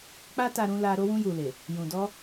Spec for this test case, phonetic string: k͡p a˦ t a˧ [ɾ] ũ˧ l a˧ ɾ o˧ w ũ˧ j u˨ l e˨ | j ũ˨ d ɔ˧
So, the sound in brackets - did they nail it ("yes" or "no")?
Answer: yes